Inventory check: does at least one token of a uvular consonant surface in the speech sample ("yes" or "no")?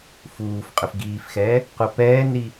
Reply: yes